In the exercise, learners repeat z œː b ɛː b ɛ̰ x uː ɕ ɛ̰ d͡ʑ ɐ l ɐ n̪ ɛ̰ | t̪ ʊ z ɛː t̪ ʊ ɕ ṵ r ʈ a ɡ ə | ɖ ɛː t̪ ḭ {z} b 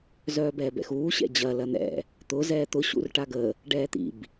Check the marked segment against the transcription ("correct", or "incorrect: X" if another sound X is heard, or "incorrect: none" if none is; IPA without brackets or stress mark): incorrect: none